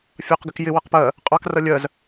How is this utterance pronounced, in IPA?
fʲ ɑ q ɡ ɪ k j ɪ w ʌ q p ɜ | qʼ ɑ k r ʌ lʲ ɜ z

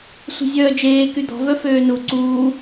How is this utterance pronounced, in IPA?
sʷ i̤ zʲ œː d͡ʒ eː k y d̪ ɔ̤ v œ f øː n u ǀ uː

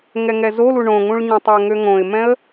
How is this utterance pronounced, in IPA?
ŋ ɛ ŋ ɛ z o l u ɳ õ ŋ ũ ɭ ɲ ɛ̃ tˤ o ŋ ø ŋ õ ɪ̯ m ɛ̃ ə̯

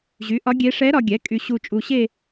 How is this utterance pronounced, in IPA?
ʑ y˩˥ ʔ ɒ˧˥ ɡʲ e˧˥ ʂ ɛ˧˥ ɾ ɒ˧ ɡʲ ɛ˩˥ kʼ y˧ ɕ u˧ t͡ʃʼ u˧ ɕ e˥˧

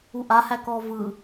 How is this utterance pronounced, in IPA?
u ʔ a h æ k ɔː v ɯ

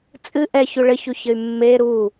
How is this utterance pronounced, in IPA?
t͡sʼ ɨ ʔ ɛ ç u ɭ ɘ ç u ç ɘ y̯ mː e ɾ u

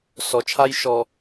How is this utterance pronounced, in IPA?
s ɔ˨ t͡ʃʰ a˦ j ʃ ɔ˨

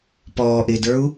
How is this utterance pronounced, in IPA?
p ɔː ʔ ɪː d ə˞ u̯

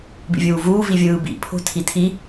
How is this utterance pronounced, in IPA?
b ḭ vʲ uː v uː v i vʲ ɯː b ḭ pʰ o̤ tʰ i tʰ i

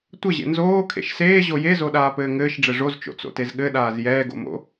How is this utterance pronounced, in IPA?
tʷ ɘ ʑ ḛ n z oː kʰ ḛ ʃ s eː ʑ o j e z o ɗ aː p ɘː ŋ ɘː ʃ ɖ͡ʐ ɘ ʐ o z t͡ʃ o̰ t͡s o̰ t e z ɠ ɘ ɗ aː z j ɛː ɡ o̰ m o̰

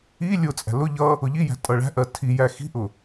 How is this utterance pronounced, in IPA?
i lʲ ʊ t͡sʼ æ̤ l ʊ ʎ ʌ | ʊ ʎ i j æ̤ tʼ ʌ ɭ æ̤ ʔ ɜ tʰ i j æ x i̤ ʔ ʊ

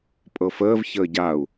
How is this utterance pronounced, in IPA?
pʼ ɤ f əː v ç əː ɟ a u̯

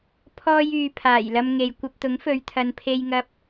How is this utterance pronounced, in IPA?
pʰ ɔː˥ j yː˧ pʰ aː˨˩ j l ɐ˧ m ŋ e˨ j kʷ ɐ˧ p̚ t̪ ʊ˨˥ ŋ f ɵ˨˧ ɥ t̪ʰ ɐ˨ n pʰ e˧ j ŋ ɐ˧ p̚

